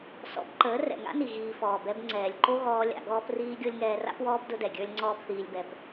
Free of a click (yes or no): no